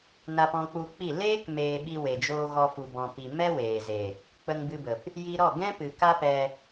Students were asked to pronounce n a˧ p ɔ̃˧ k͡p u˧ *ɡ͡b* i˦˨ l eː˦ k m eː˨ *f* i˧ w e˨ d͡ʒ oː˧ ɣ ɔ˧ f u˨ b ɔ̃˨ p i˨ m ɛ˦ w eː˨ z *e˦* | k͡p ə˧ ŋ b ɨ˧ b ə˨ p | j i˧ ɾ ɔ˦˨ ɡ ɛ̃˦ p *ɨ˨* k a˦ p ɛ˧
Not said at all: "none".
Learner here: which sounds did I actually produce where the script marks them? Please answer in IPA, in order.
k͡p, ɓ, e˨, ɨ˨

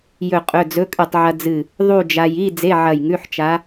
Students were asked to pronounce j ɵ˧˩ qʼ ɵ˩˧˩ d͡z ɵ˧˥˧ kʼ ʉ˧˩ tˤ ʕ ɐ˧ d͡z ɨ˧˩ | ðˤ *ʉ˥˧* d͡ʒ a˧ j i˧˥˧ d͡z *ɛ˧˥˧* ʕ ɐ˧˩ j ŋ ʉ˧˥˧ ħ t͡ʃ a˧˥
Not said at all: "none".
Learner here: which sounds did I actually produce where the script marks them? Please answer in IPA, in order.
u˥˧, e˧˥˧

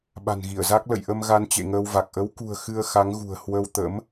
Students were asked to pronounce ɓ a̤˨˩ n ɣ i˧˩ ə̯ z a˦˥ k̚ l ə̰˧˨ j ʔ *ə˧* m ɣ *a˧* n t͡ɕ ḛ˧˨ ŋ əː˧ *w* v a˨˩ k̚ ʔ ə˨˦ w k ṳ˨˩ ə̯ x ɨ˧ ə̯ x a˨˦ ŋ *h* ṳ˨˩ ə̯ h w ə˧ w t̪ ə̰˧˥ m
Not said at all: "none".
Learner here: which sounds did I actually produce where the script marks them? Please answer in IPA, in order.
ə˧, a˧, w, ɣ

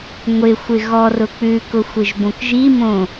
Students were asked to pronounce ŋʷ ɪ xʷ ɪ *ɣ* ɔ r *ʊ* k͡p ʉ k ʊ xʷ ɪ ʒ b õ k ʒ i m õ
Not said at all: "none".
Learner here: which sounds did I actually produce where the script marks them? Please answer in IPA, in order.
ɣ, ʊ

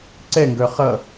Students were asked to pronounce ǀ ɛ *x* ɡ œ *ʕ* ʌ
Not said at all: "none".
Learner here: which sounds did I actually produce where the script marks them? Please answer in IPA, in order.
ŋ, χ

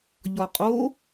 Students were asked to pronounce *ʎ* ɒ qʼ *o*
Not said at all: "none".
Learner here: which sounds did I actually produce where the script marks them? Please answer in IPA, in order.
ʎ, o

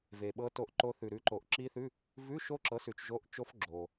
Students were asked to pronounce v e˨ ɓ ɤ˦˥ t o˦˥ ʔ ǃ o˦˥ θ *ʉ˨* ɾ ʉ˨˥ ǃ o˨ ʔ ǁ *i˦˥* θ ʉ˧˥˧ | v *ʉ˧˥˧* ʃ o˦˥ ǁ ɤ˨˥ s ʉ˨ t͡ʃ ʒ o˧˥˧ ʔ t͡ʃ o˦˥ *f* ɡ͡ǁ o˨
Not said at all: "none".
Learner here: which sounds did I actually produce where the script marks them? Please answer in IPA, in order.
ʉ˨, i˦˥, ʉ˧˥˧, f

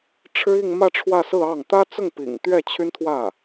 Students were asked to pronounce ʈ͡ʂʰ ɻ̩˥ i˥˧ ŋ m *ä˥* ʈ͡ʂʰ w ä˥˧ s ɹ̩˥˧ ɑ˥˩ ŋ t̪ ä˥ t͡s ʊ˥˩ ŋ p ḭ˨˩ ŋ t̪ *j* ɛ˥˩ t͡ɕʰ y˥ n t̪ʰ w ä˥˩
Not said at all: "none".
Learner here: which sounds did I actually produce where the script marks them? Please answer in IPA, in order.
ä˥˧, ɥ

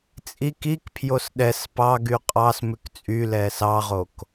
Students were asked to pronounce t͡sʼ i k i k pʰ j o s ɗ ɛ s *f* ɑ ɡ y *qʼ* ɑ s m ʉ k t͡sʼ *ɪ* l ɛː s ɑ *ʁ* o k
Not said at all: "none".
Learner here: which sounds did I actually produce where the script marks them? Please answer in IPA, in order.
p, qʼ, y, ʁ

